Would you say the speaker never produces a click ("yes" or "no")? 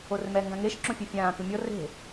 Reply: no